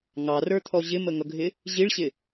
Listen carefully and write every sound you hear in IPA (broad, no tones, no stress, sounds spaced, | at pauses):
ŋ ɑ r ə˞ t̪ʰ ɔ ʑ ɪ m ə ŋ ʌ ɡʱ ɪ | ʑ i ɭ ɕ ɪ